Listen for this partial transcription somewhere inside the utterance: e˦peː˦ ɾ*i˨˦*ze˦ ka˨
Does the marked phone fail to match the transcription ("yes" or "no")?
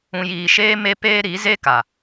no